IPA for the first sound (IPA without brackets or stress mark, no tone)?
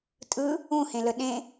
tʼ